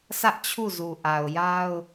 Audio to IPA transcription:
sä˦ʔ t͡ɕʰu˦˨zu˨ʔa˨ʊ̯ja˦ʊ̯

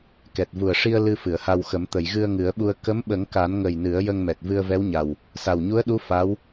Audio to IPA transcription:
kɛ˨˩t̚vu˨˩ə̯ʂi˧ə̯ lɨ˧fɨ˨˩˨ə̯ha˧wxə˨˩˦m t̪ə˨˩˨jɣɨ˧ə̯ŋɨ˨˩˦ə̯ɓu˧ə̯ kə˧˥mɓə˨˩˦ŋka˨˩˦nŋə˨˩j nɨ˨˩˦ə̯jə˧ŋmɛ˨˩t̚ vɨ˧ə̯vɛ˧˥wɲa˨˩w | sa˨˩wɲu˧˥ə̯ɗu˧˥ fa˧˥w

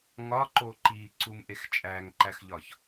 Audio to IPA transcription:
ŋɒǃo ǃiǀumʔex t͡ʃʼæŋǃæxʎɒç

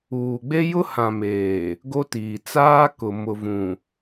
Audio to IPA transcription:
uː˨ɡ͡be˦jʊ˦ hã˨meː˨ | ɡo˦tiː˨ t͡saː˦kʊ˨ mʊ˨vũ˨

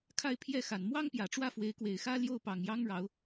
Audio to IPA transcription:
kʰa˥˧ɪ̯ pʰjɛ˥˩xa˨˩n mwɑ˥ŋpjä˨˩ʈ͡ʂwä˥˩fwe˧˥ɪ̯ kwe˨˩ɪ̯xä˥ljo˥˩ʊ̯ pɑ˨˩ŋjɑ˥ŋɻɑ˧˥ʊ̯

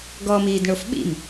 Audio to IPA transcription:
ɡɔmiːdɳof ɓḭm

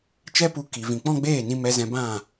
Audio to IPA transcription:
t͡ʃɛ˦pu˧ ki˨vĩ˨ k͡pɔ̃˦ɡ͡beː˦˨nĩ˧ mɛ˧zɛ̃˧bã˦˨

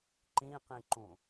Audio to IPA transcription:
ǃĩqĩǃũ

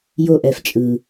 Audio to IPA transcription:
jo˧ʔɛ˨f t͡ʃʼɯ˨

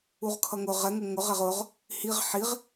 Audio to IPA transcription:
uʁkʰʌŋʊ ʁɛŋʊ ŋʊʁ ɛʁʊʁ | hiʁ ħiʁ

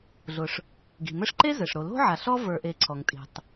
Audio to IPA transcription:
ɮʊ˨ʂ | ɡi̤˩mɘ˦ʂǃe˥ zɘ˩ʂɾo˨lo̤˥ʕa˨ ɬɔ˦və˞˨ʔe˨ǀʰɔ˩ŋ tʼi̤˨tˤ

